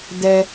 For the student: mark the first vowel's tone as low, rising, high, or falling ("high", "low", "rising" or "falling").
high